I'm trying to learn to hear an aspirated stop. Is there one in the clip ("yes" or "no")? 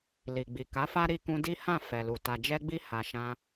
no